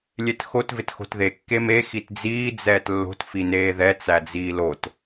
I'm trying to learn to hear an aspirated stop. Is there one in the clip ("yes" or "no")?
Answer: no